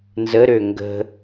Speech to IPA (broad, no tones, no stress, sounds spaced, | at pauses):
n z ə ɾ ø ŋ ɡ ə̤